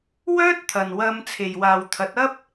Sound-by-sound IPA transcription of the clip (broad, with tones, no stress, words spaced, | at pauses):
wœː˥t̚t̪ʰɐ˨n wɐ˧m t͡sʰe˨jwaː˨wt̪ʰɐ˨˥t̚ɐ˥p̚